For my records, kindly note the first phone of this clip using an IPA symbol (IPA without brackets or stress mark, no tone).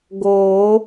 ɡ